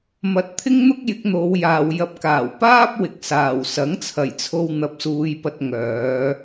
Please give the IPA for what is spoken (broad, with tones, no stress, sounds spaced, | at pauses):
m ɐ˧ t̚ t̪ʰ ɪ˥ ŋ n̪ ʊ˥ k̚ j ɪ˨˥ k̚ n̪ o˨˧ w j aː˨ w j ɐ˧ p̚ k aː˨˩ w p aː˥ p̚ w ɪ˨ k̚ s aː˨˩ w s ɐ˨˥ ŋ t͡sʰ ɐ˨˩ j t͡sʰ o˧ w n̪ ɐ˧ p̚ s uː˧ j p ɐ˧ t̚ ŋ œː˨˧